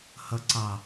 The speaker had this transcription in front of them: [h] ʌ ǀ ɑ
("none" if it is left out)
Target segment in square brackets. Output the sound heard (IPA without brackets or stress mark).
h